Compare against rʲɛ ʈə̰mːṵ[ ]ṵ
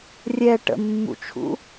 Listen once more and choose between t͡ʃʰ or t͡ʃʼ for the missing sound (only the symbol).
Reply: t͡ʃʰ